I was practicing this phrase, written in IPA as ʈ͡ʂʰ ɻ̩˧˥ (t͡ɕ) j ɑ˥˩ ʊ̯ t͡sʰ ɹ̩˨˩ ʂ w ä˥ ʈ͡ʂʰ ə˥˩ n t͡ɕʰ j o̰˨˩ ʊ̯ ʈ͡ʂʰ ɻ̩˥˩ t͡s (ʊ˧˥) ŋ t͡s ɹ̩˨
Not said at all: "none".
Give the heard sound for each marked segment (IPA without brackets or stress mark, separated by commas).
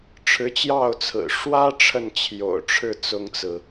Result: t͡ɕ, ʊ˥